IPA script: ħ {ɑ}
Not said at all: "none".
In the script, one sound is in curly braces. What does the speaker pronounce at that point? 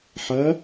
ɐ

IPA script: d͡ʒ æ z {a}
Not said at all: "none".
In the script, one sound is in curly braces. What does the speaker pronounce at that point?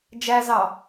ɑ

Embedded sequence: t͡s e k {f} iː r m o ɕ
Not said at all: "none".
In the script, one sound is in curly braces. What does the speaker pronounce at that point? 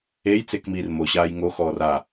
m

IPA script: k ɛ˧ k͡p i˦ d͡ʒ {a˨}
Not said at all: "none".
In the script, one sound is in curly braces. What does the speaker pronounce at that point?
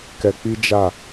a˦˨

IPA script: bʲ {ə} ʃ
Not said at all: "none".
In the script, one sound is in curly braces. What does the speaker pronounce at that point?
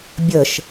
ə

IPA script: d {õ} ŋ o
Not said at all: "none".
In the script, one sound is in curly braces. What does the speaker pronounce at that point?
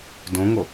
õ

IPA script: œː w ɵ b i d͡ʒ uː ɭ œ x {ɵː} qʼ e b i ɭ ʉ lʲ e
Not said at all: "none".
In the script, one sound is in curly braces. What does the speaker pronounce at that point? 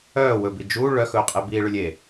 ɵː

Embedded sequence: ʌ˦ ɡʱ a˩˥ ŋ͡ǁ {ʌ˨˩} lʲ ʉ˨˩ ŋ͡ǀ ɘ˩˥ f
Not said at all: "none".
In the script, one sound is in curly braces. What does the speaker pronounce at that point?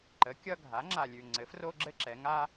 a˨˩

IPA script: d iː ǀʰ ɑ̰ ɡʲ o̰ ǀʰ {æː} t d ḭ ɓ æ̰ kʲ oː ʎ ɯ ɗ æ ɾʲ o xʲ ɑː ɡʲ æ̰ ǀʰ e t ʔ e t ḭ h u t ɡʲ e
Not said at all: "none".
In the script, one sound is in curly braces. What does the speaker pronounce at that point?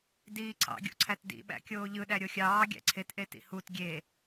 æ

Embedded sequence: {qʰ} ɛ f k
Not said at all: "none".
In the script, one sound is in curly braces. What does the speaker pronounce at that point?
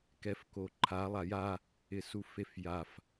k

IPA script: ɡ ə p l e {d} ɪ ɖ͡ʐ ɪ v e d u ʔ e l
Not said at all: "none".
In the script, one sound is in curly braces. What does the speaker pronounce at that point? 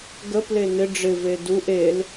n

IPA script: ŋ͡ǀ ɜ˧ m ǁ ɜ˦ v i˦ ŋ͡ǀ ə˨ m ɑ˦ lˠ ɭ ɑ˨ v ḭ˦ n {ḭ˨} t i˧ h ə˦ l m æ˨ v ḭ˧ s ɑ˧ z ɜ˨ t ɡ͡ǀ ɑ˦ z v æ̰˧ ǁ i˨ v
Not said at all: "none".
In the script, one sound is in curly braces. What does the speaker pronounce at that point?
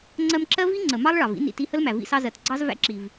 ḭ˨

